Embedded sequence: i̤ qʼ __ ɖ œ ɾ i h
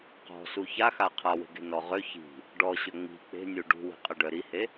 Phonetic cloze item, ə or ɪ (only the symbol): ə